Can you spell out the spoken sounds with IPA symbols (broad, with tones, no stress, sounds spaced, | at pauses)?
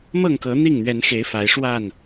m ɤ˥˨ ŋ k ɤ˨˦ n̪ i˥˨ ŋ n̪ ɥ ɛ˨˦ n x e˨˦ ɪ̯ f a˨˦ ɪ̯ ʂ w a˥˨ n